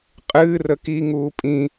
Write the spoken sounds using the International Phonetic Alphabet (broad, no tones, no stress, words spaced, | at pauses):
qʼɨː rəki ŋuːpʼĩ